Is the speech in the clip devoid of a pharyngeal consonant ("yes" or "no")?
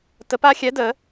yes